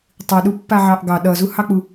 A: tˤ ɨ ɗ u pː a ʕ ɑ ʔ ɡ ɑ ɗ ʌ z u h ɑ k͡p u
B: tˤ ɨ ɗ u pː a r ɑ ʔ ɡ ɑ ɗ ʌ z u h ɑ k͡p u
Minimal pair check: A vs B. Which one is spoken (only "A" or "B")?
A